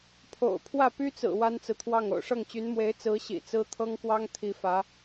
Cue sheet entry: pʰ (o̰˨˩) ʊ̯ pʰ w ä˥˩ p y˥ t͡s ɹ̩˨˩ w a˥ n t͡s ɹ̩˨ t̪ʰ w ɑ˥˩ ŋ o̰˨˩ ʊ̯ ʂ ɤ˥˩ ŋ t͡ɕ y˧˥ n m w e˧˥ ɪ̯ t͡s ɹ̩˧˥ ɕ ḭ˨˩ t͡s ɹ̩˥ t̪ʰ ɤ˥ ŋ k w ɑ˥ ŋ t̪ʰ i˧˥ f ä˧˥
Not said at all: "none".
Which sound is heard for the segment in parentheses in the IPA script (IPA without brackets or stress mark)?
o̰˨˩